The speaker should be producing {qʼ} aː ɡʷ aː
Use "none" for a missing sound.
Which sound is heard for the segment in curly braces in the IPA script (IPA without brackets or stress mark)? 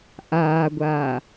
ʔ